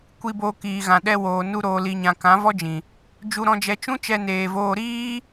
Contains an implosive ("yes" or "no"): yes